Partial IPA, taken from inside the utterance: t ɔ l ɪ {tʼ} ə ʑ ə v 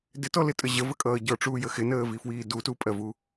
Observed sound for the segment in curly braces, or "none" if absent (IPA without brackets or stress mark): tʼ